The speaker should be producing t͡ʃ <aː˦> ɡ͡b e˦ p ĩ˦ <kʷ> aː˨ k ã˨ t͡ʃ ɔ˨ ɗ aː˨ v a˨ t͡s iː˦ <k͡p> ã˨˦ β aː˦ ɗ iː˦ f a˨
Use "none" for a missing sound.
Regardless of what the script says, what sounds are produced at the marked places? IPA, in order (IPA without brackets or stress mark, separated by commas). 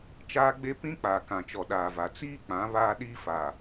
aː˦, k͡p, k͡p